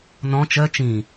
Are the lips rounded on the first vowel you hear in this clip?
yes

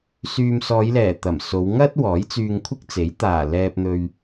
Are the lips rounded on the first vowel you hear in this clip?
yes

